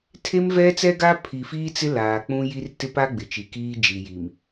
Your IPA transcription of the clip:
tʰ e˦ m v ɛ˦ t͡s ɛ˦ ɡ a˦ pʰ i˨ f iː˦ t͡s ɪ˦ l aː˨ k͡p ũ˦ j i˦ r t ɪ˦ p a˦ ɡ͡b ɪ˨ t͡ʃ i˨ k iː˦ d͡ʒ i˨ j i˨ m

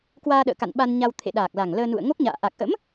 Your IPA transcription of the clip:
k w aː˧ ɗ ə̰ː˧˨ k a̰˧˨ n ɓ a˧ n ɲ a˧ w t̪ʰ ḛ˧˨ ɗ aː˨˩ k̚ l a˨˩ ŋ l əː˧ n ṵ˧˨ ə̯ ŋ o˦˥ k̚ ɲ a̰ː˧˨ ʔ a˨˩ k̚ ʔ ə̰˧˥ m

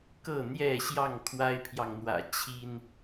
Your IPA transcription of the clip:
k ɤ˥˨ n̪ j ɛ˥˨ ɕ j ɑ˥˨ ŋ kʰ w a˦ ɪ̯ pʰ j ɑ˨ ŋ n̪ w ä̰˨˩ t͡ɕʰ i˦ n

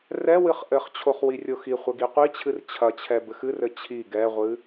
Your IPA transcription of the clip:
r ɛ w ɨ χ ʔ ɘ χ t͡ɕʰ o χ w i rʲ o x i χʷ ɘ ɡ i qʷ i t͡ɕʰ ɨ r t͡ɕʰ ɐ t͡ɕʰ ɛ b ɘ x ɨ r ɘ t͡ɕʰ i ɡ ɛ ʁʷ ɨ

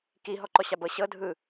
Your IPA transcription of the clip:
k i ɦ ɔ ǃ ɔ ɕ a b ɤ ɕ ɤ dʱ ɯ

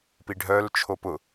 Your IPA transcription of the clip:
p i ɖʱ œ l t͡ʃʰ o p ʊ

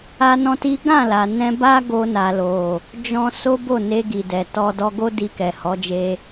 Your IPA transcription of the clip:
a˦ n ɔ̃˦ t i˦ ɡ ã˦˨ l a˨ n ɛ̃˧ b a˦ ɡ o˧ n a˨ l o˨ | d͡ʒ ɔ̃˦ s o˦ b o˦˨ n e˧ ɡ i˨ d ɛ˨ t ɔ˧ d ɔ˧ ɡ o˦ d i˧ k ɛ˨ h ɔ˨˦ d͡ʒ e˧

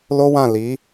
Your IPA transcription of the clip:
l o˦ w ã˦˨ l i˨˦

